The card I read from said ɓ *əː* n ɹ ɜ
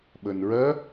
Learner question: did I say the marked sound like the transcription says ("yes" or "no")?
yes